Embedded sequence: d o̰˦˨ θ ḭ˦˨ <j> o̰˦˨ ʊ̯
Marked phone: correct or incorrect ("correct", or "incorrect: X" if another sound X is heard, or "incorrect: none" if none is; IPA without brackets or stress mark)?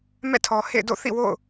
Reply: incorrect: w